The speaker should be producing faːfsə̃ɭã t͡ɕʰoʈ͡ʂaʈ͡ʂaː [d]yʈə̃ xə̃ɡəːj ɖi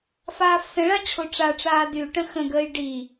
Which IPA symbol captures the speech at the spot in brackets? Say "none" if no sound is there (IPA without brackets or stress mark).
d